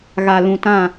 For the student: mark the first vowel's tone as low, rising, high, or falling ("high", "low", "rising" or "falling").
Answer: low